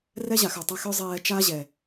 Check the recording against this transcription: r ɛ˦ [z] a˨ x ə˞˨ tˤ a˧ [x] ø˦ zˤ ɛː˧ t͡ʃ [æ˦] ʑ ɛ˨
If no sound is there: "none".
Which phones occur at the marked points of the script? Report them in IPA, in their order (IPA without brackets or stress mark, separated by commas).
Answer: ʑ, x, a˦